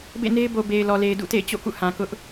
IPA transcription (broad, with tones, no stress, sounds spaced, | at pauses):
b ḛ˦˨ n e˦ ɪ̯ b o˨ b e˨ ɪ̯ l ɔ˨ l e˨ ɪ̯ d ṵ˦˨ t ḛ˦˨ ɪ̯ t͡ɕ o̰˦˨ k ṵ˦˨ h ã˨ k ʊ˦ ʔ